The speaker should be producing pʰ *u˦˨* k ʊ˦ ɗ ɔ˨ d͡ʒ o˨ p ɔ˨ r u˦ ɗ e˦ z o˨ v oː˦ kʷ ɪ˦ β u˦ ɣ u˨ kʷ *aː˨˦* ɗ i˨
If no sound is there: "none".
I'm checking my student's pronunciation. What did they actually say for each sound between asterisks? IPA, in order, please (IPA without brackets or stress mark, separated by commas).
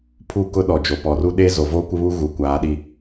u˦˨, aː˨˦